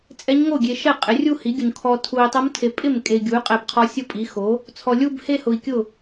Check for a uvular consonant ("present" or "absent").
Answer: present